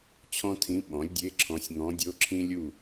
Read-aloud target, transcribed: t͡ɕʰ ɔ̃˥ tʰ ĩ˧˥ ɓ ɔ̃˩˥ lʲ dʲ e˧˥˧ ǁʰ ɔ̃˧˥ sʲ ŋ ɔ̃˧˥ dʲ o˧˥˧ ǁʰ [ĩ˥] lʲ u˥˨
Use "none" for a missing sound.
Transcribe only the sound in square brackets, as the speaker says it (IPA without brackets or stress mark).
ĩ˥